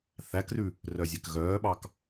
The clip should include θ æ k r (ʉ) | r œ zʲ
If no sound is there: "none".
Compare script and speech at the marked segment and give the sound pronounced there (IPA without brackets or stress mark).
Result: ʉ